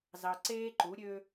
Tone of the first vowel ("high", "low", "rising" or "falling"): low